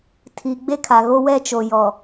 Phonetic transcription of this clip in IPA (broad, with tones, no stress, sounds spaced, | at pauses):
tʰ i˨ ɡ͡b e˦ kʰ a˨ ɣ o˦ w ɛ˦ t͡ʃ o˨ j ɔ˨